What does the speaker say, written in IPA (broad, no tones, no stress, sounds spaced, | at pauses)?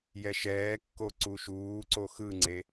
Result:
j ɛ ʃ ɛː kː o ǀ u ʃ uː ǀ o x ɯ ŋ͡ǀ e